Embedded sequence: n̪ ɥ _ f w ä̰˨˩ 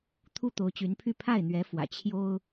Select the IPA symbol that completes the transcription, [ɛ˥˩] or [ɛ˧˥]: ɛ˧˥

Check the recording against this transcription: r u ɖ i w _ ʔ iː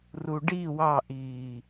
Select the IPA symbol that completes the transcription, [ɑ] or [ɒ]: ɑ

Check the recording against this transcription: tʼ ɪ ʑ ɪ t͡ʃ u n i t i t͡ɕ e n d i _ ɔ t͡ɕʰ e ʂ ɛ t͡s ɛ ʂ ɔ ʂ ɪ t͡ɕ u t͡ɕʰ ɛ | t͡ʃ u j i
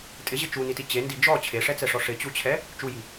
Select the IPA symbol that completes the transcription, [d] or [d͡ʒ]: d͡ʒ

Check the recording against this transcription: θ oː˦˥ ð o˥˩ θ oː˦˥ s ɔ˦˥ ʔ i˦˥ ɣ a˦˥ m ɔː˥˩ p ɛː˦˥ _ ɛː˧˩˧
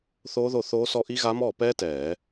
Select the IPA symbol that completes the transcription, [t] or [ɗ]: t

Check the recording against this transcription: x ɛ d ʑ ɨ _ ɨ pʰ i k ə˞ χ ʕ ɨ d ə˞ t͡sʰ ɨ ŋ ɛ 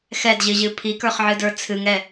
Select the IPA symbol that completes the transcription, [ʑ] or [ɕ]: ʑ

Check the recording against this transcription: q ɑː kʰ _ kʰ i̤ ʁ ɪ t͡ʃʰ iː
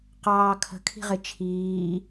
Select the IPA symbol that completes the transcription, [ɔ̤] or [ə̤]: ə̤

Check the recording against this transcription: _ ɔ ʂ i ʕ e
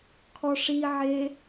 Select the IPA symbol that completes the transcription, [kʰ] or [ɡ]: kʰ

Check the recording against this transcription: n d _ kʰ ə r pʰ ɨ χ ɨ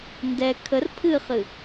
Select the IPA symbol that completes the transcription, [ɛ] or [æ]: ɛ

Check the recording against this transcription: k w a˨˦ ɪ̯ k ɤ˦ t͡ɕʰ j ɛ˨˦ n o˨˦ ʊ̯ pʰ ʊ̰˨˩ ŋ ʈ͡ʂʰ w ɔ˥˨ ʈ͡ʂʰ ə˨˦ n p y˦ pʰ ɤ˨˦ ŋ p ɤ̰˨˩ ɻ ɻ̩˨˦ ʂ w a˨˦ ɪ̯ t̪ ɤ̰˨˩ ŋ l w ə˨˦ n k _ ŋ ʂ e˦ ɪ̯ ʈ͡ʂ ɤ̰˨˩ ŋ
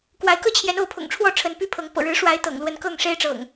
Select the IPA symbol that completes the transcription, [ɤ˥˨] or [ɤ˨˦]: ɤ˥˨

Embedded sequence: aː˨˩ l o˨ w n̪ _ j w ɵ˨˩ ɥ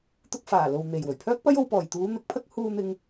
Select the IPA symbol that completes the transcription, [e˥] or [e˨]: e˨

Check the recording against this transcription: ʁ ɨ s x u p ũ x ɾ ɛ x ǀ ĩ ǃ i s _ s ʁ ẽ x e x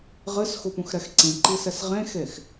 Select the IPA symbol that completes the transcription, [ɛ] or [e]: ɛ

